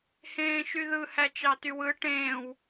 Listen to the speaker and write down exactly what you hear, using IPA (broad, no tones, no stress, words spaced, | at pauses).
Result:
hẽːʃyðɯ hæt͡ʃɑtywɯ ʈẽːw